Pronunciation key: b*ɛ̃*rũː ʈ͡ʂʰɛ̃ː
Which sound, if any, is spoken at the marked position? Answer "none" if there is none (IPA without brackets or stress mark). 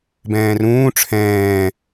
ɛ̃ː